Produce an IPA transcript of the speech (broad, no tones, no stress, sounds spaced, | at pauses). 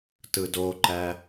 t ɯ d o ǃ æ